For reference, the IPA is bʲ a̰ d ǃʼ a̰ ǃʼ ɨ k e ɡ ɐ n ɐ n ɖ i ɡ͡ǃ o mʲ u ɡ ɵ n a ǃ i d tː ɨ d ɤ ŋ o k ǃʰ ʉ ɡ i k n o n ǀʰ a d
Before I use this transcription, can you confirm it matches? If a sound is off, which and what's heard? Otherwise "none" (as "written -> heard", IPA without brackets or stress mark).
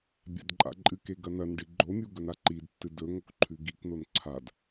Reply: ɤ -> ɵ